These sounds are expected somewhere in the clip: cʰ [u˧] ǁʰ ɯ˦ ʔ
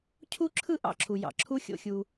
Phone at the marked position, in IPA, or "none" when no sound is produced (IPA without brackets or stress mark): u˦